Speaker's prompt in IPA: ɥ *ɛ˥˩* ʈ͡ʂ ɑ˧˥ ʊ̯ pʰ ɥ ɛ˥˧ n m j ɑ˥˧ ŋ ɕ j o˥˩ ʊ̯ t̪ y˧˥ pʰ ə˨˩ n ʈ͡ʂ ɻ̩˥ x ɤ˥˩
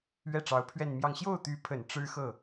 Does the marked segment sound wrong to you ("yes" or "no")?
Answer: no